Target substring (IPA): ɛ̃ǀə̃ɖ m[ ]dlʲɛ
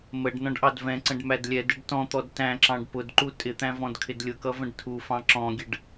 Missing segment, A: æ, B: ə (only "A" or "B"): A